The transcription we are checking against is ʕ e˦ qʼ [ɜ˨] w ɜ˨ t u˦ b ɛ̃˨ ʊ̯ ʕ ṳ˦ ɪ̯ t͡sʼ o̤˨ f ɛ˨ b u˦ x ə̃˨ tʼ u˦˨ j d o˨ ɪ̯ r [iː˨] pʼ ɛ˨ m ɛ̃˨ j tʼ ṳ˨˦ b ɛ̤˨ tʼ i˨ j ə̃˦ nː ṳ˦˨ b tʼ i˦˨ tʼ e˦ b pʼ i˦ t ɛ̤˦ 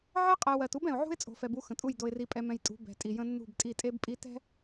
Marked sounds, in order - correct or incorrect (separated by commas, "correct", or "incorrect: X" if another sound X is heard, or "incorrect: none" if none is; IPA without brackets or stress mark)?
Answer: incorrect: ɛ˨, incorrect: i˨